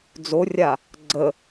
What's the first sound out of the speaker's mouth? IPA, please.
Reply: d͡z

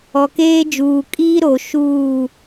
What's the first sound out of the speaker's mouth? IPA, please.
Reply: ɔ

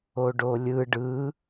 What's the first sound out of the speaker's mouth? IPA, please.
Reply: o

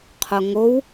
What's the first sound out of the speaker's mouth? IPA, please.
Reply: qʰ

